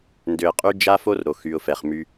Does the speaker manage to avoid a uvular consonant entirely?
no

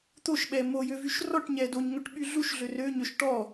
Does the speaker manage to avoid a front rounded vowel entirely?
no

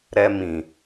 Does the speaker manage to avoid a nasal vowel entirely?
no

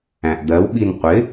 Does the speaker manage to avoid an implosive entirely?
no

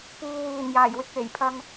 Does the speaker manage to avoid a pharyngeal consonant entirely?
yes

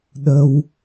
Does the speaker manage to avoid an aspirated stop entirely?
yes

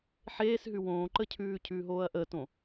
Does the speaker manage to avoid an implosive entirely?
yes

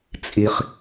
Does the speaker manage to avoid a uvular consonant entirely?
no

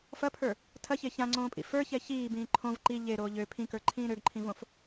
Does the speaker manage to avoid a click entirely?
no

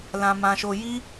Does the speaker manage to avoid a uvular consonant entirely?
yes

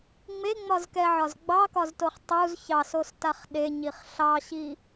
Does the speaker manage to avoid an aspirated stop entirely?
yes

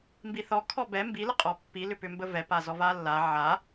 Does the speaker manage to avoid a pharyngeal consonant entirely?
no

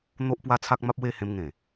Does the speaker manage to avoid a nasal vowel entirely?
no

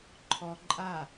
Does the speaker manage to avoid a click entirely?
no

